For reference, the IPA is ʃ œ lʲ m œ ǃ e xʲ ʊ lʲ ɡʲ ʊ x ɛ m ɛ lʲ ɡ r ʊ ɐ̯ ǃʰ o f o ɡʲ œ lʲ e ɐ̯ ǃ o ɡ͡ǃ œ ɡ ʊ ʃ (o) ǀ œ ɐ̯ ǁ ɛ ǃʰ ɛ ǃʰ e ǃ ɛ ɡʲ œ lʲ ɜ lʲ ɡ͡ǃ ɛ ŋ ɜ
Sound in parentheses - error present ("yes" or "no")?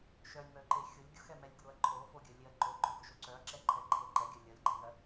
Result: no